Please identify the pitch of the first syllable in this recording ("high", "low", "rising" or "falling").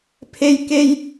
high